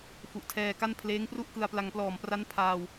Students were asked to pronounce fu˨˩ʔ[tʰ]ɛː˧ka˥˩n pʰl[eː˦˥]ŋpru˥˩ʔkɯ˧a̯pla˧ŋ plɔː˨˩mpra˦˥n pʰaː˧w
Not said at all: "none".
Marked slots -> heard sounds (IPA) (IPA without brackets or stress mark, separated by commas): tʰ, eː˦˥